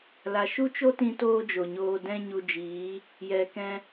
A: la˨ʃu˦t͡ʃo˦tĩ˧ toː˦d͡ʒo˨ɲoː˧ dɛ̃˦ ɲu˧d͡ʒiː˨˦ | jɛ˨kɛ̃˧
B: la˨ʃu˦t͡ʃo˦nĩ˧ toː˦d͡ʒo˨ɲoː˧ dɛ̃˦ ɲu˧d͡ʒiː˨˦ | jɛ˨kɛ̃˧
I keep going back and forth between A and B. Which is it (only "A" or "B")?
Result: A